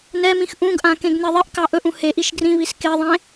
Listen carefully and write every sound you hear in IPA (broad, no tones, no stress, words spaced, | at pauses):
nɛmĩx ʔũɡʔã kẽɡneðˤiʔkɑ ʔɵʔũ heʔiʃ ɡrĩβis keðˤẽ